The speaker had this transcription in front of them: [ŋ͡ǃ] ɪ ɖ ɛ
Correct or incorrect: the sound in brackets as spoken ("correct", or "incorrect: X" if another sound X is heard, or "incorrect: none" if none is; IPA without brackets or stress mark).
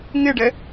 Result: incorrect: ŋ